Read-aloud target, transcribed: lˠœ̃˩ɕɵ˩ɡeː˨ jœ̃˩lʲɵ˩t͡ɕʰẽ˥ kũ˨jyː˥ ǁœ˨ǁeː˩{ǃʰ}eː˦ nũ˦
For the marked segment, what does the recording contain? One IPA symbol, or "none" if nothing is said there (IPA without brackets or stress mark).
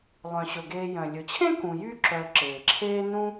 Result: ǁʰ